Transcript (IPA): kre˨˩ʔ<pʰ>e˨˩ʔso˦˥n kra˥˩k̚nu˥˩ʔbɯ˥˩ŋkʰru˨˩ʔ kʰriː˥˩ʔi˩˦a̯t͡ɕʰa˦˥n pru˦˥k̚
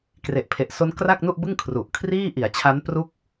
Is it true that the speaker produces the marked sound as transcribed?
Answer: yes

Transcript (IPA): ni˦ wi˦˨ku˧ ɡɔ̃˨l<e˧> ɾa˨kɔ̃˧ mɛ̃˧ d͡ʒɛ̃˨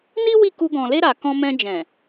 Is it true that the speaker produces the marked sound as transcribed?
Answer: yes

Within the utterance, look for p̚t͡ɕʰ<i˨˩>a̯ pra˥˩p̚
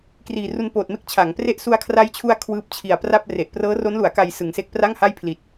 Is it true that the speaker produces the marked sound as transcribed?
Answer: yes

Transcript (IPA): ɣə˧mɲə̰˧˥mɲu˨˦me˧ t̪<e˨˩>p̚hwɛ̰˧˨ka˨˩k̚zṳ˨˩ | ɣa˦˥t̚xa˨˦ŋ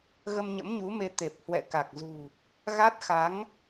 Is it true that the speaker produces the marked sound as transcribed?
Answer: yes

